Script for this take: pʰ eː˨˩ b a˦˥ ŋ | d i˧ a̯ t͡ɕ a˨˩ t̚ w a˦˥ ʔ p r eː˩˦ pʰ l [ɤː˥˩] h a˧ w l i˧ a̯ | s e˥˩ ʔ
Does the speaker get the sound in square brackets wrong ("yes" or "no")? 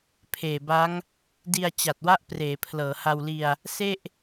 yes